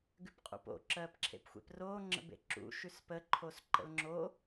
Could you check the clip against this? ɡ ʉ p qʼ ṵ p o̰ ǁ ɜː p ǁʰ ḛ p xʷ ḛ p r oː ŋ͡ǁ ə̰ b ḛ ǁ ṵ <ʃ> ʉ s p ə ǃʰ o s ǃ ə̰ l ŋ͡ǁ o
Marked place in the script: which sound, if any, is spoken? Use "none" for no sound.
ʃ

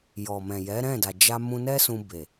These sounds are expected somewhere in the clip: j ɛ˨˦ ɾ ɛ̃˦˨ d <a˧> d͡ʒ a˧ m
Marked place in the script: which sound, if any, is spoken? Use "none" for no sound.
a˨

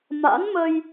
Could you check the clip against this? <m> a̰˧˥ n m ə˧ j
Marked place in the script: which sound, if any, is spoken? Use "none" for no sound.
m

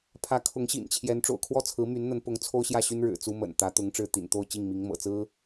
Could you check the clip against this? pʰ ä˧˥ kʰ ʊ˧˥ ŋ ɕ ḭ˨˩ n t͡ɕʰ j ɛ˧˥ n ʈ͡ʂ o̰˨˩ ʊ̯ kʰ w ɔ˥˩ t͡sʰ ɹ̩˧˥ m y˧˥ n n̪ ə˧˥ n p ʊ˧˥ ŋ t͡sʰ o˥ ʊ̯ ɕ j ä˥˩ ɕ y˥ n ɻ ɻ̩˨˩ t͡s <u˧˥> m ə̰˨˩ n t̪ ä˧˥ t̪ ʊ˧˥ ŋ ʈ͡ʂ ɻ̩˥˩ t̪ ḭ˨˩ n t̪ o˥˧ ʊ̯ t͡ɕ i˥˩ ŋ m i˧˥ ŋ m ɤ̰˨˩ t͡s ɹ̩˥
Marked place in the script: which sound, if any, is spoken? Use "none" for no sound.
u˥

